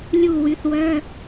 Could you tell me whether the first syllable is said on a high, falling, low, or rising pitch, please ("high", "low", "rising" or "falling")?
falling